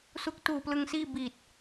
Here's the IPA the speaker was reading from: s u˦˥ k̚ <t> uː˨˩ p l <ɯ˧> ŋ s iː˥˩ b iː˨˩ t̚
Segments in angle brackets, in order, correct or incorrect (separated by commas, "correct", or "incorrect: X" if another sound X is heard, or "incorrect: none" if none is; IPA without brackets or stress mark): correct, correct